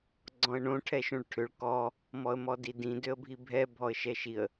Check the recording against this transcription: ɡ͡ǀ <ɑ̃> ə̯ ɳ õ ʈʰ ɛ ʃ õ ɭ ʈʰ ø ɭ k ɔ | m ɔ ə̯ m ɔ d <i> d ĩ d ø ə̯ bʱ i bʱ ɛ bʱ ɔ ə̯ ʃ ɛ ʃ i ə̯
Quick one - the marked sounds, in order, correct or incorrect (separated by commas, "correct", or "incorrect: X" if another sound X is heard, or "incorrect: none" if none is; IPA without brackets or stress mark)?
incorrect: ɔ̃, correct